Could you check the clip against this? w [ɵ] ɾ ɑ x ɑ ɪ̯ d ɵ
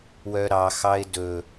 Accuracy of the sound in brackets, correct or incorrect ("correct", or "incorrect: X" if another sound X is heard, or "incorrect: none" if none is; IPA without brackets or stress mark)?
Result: incorrect: œ